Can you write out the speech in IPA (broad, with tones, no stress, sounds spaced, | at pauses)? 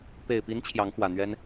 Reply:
p e˨˩ ɪ̯ p i˧˥ n t͡ɕʰ j ɑ˧˥ ŋ x w ä˨˩ n̪ ɥ ɛ˥ n